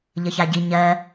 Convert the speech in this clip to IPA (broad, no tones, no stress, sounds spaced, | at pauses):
ʎ ə ç a ɟ i ɲ ɜ